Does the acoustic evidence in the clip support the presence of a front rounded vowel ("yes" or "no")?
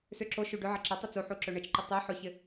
yes